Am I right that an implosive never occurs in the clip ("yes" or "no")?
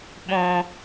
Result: no